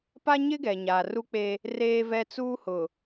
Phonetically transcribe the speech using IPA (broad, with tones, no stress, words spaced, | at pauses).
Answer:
pa˦ ɲɪ˦ɡɛ˨ɲa˨ ru˦k͡pe˦ | reː˦vɛ˦t͡suː˦hʊ˨